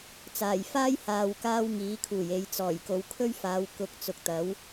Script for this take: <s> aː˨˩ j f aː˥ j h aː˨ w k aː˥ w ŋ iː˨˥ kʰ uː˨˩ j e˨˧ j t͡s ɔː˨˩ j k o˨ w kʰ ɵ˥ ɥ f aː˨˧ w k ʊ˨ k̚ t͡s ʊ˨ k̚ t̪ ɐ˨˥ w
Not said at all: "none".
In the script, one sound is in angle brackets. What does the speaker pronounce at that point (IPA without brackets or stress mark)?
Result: t͡s